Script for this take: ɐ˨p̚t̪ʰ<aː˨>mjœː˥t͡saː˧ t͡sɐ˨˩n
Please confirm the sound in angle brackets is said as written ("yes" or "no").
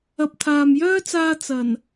yes